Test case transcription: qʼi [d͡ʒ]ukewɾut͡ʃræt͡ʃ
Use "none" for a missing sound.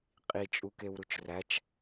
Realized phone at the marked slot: t͡ʃʼ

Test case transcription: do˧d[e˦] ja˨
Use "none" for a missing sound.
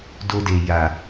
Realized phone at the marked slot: e˨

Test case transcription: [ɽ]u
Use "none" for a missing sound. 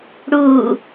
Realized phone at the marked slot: ɽ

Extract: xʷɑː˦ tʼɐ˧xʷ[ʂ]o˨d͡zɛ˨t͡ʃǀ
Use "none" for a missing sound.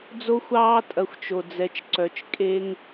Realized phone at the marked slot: t͡ʃ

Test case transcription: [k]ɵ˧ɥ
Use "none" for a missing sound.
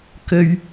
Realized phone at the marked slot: k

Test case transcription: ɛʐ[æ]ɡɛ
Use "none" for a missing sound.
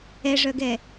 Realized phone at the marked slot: œ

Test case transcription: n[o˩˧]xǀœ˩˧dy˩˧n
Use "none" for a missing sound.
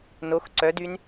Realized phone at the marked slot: o˩˧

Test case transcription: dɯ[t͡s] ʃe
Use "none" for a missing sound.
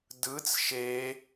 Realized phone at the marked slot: t͡s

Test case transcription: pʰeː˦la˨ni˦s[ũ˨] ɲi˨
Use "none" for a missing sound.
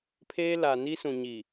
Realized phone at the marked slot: ũ˨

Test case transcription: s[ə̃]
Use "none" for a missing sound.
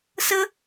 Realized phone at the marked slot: ə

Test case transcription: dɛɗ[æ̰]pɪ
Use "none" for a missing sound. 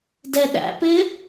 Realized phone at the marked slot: æ̰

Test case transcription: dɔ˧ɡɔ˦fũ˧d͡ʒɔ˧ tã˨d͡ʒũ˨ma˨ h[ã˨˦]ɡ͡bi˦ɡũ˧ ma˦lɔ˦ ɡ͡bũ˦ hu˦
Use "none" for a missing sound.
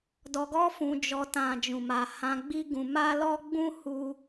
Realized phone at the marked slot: ã˧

